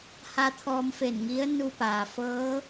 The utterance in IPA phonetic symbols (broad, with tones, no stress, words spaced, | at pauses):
ha˧t̪ʰɔː˧mfe˧˩nŋi˧˥ə̯ nu˧paː˩ fɤː˧˥